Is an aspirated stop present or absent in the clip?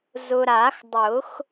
absent